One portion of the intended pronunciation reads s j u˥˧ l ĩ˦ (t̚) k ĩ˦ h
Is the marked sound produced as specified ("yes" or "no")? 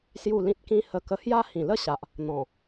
yes